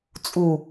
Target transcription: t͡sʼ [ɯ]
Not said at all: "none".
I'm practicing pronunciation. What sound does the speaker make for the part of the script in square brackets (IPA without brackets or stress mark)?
u